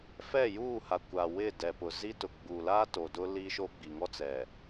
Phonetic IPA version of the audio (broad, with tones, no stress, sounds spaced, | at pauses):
f ɛ˦˨ j uː˦˨ h a˨ kʷ a˨ w ɪ˦˨ d ɛ˨ p ʊ˨ z i˦ t ʊ˨ ɡ͡b u˨ l a˦ t o˨ d ʊ˦ l i˦ ʃ o˦ ɡ͡b i˨ ŋ ɔ˦ t͡s ɛ˨